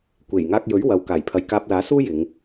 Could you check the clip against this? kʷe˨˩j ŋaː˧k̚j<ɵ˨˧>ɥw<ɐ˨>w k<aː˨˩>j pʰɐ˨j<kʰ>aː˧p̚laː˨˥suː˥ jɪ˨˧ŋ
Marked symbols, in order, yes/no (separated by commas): no, yes, yes, no